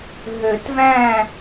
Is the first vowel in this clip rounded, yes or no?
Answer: yes